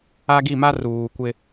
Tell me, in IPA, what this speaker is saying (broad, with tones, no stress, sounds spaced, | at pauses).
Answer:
a˦ ɡ i˦˨ m a˦ r uː˨ kʷ ɪ˦